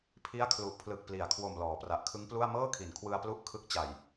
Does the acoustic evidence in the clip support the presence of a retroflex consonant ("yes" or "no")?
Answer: no